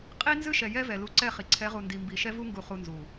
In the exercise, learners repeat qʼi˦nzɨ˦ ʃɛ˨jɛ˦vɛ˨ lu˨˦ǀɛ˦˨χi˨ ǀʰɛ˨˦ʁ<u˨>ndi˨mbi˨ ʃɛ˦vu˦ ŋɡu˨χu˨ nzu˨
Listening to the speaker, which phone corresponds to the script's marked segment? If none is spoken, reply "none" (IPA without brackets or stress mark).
u˨